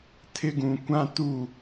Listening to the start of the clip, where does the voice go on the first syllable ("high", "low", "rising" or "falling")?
high